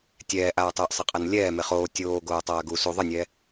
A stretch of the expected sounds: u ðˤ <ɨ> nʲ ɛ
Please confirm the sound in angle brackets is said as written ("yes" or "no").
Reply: yes